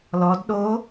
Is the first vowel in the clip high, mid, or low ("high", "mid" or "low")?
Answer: mid